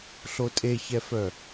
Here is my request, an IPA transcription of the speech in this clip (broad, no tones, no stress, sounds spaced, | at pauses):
ɬ o tʼ e ç ɛ f œ